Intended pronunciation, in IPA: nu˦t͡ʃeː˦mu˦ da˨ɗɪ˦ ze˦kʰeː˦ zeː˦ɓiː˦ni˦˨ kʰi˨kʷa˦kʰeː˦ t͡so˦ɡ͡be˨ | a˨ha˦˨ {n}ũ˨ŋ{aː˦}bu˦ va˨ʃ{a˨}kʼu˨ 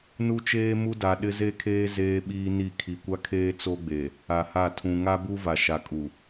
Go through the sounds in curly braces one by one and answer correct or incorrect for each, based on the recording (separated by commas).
incorrect, incorrect, correct